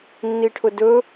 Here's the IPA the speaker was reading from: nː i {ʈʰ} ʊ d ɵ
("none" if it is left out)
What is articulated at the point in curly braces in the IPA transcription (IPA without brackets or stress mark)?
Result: ʈʰ